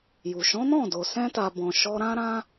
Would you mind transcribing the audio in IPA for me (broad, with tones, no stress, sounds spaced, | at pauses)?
j u˨ ʃ ɔ̃˨˦ n ɔ̃˦˨ d o˨ s ɛ̃˧ t a˨ b ɔ̃˨ ʃ ɔ˧ ɾ ã˦ ɾ ã˦